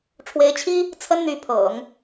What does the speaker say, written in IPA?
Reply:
ʈ͡ʂʰ w e˧˥ ɪ̯ t͡ɕʰ i˥ | t͡sʰ ə˥ n n̪ y˧˥ pʰ ɤ̰˨˩˦ ŋ

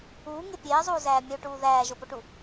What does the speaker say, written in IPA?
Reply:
uː ŋ e pʲ eː zˤ uː z æː mʲ o ʈ uː ð æː ʒ o p o ʈ u

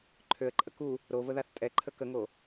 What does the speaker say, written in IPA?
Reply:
ǃʰ ø ə̯ ǃʼ ə k u | ɾ o v ə ð a θ tʼ ɛ ǃʰ ə k ə ŋ o

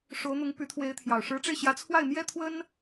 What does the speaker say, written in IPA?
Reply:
ʂ o˧˥ ʊ̯ n̪ ʊ˧˥ ŋ p y˧˥ t̪ʰ w e˧˥ ɪ̯ t̪ʰ j ɑ˨˩ ʊ̯ ʂ ɻ̩˧˥ ʈ͡ʂ e˧ ɪ̯ ɕ j ä˧˥ t͡sʰ w a˥˩ ɪ̯ m j ɛ˥ t̪ʰ w ə˥ n

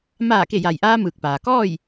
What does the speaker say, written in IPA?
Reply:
m aː˧˩ k e˧˩ j a˩ j ʔ aː˧ m ɯː˧˩ k̚ p aː˩ k ɔː˥˨ j

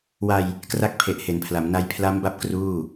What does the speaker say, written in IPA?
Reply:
w a˧ j | k r a˦˥ k̚ pʰ e˨˩ ʔ h e˩˦ n pʰ l a˩˦ m n a˧ j pʰ l a˦˥ m b a˥˩ p̚ k r uː˥˩

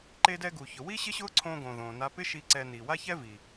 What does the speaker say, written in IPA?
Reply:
ǃ e˧ d ɛ˧ ɡ u˩ ç ʊ˩ w i˥ ɕ ɪ˥ ɕ ʊː˥ ǀʰ õː˧ ɡ õː˩ ð õː˩ n a˧ p ɪ˥ ʃ i˧ ǀ ɛ˧ n i˩ w a˥ ç ɛ˥ v i˩

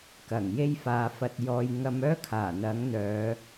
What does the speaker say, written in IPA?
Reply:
k ɐ˨˩ ŋ j e˥ j f aː˨˧ f ɐ˧ t̚ j ɔː˧ j ŋ ɐ˧ m œː˥ kʰ aː˨˩ n̪ ɐ˨˥ ŋ n̪ œː˨˧

